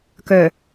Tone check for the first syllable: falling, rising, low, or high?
low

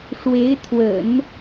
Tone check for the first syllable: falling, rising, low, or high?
rising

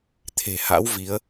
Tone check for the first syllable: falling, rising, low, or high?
low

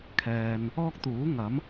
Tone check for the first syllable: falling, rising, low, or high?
low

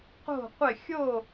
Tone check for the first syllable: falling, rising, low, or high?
falling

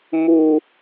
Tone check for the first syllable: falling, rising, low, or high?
low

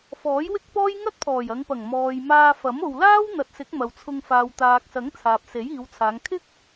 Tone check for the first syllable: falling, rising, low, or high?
rising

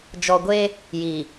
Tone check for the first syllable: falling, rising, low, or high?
low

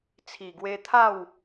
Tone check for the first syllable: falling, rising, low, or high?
low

